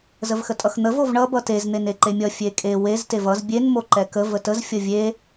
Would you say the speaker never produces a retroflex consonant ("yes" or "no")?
no